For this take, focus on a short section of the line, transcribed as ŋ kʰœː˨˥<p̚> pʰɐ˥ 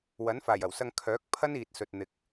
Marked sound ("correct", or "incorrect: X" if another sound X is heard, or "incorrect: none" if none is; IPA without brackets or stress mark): incorrect: k̚